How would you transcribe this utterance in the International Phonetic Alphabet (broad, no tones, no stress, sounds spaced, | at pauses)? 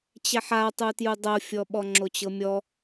t͡ɕ ɛ ħ a tˤ u t j u dˤ ɤ fʲ ɔ ɓ ɔ ŋ͡ǁ o t͡ɕ ɤ mʲ ɔ